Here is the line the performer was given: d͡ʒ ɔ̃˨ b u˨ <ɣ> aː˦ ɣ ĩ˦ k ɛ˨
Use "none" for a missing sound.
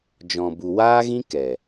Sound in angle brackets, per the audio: w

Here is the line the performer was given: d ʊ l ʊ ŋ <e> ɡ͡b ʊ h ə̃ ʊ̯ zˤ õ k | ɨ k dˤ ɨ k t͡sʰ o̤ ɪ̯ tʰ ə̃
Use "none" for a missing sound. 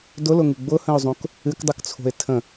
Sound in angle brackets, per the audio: ɨ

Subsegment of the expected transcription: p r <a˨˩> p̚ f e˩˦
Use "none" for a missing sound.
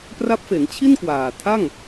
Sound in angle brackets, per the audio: a˦˥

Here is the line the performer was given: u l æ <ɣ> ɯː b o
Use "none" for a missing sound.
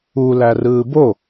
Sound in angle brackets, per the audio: r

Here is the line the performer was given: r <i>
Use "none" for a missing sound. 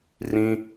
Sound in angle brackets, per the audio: ĩ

